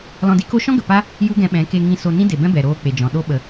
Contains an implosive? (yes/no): yes